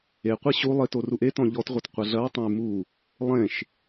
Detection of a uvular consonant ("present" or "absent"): present